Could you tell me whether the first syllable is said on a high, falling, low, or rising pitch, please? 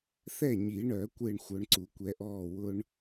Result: falling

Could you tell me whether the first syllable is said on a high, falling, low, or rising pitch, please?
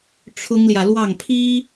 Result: high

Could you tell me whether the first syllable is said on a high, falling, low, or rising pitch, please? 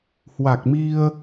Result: low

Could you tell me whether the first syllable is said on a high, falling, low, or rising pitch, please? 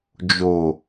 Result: low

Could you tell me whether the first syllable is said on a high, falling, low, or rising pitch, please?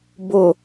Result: low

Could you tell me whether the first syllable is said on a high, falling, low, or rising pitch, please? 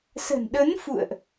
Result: low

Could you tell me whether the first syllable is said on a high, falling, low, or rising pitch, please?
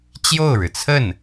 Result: falling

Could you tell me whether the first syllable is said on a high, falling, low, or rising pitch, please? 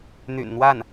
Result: low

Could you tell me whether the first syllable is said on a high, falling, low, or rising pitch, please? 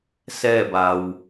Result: falling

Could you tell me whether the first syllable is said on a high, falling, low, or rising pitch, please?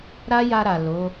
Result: high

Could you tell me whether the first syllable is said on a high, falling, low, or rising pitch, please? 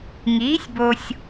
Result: rising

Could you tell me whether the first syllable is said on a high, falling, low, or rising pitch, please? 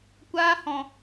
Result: high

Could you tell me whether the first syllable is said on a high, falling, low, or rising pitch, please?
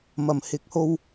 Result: low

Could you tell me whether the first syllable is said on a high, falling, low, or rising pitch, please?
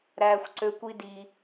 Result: high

